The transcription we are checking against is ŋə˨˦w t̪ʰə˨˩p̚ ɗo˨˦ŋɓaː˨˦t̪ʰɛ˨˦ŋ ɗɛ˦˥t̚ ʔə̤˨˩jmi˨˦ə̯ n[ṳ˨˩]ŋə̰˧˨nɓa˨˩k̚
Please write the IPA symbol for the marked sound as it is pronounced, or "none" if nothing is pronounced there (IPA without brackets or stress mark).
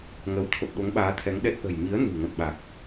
ṳ˨˩